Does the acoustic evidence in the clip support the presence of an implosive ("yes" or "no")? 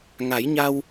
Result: no